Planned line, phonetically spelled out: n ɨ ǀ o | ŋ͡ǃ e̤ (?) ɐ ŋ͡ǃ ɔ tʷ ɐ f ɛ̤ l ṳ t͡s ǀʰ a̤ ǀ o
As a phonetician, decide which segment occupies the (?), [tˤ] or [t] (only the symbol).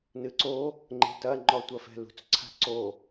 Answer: t